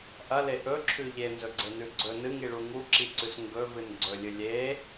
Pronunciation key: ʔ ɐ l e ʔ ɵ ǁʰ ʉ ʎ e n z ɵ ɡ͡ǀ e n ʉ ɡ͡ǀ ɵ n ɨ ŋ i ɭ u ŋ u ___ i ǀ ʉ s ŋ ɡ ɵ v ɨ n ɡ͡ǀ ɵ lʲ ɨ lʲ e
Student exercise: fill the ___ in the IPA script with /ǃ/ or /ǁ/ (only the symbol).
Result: ǁ